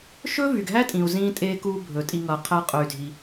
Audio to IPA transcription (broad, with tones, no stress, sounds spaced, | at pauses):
ʃ ɵ˦ v y˨ ɡ ɦ æ˦ tʼ ĩ˨ u̯ z ĩ˧ tʼ e˧ k u˧ bʱ ɵ˨ tʼ i˧ ŋ ʌ˨ qʰ æ˦ qʼ ɵ˧ y̯ dʱ i˧